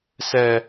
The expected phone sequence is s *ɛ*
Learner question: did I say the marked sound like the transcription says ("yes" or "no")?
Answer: yes